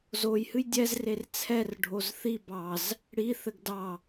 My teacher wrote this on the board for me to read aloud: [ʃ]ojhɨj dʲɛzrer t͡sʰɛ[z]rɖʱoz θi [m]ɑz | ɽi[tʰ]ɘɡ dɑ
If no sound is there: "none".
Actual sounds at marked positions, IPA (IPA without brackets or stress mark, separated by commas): z, none, b, θ